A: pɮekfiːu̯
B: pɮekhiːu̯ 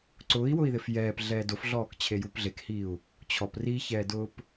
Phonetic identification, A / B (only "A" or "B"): B